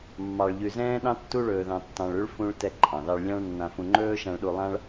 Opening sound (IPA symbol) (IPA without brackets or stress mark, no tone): mː